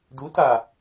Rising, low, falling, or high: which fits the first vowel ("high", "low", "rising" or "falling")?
rising